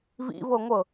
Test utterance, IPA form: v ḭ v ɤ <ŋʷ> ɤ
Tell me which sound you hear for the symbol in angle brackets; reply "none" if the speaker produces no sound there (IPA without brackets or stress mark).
ŋʷ